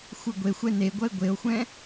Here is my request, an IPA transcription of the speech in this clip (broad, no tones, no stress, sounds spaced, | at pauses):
xʷ ɨ ɡʷ e xʷ ɛ n e ɡʷ ɐ e̯ ɡʷ e o̯ xʷ ɛ̃